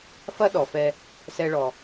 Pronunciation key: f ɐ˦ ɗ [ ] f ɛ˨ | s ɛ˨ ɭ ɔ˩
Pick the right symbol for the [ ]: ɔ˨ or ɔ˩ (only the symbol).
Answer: ɔ˩